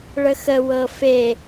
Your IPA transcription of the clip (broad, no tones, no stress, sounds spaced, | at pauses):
ɭ ə x ə w ɤ f e